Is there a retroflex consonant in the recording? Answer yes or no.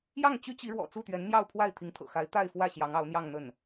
yes